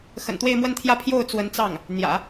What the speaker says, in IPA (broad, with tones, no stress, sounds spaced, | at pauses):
x ə̰˨˩ n t̪ w e˥˧ ɪ̯ m w ə˥˧ n t̪ʰ j ä˥˧ pʰ j o˥˩ ʊ̯ t͡s w ə˧˥ n t͡s ɑ˥˩ ŋ | n̪ j ä̰˨˩˦